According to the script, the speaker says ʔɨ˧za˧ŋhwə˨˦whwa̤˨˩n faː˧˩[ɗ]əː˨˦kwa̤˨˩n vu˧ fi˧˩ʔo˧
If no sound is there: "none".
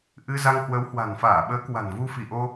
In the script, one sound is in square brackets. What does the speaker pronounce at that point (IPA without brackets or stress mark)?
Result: ɓ